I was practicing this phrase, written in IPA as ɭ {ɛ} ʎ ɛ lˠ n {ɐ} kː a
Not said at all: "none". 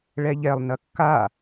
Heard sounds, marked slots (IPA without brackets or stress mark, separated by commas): ɛ, ɐ